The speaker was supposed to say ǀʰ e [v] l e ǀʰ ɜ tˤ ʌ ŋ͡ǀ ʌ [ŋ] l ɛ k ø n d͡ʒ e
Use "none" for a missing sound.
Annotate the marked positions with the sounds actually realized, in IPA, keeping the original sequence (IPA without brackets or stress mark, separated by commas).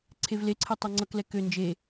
v, k